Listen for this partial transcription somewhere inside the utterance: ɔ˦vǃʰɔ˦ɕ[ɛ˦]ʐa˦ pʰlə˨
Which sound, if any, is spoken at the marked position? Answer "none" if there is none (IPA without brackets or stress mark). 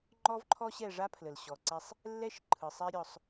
ɛ˦˨